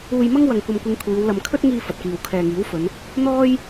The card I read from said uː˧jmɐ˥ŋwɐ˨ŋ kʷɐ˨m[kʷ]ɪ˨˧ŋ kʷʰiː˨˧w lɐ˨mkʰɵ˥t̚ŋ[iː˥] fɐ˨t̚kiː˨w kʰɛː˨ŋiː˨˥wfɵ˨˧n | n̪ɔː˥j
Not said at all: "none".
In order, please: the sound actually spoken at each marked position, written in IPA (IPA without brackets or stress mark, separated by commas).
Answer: kʷ, iː˧